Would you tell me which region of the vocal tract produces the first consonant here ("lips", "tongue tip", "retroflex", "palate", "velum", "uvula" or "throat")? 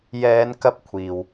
palate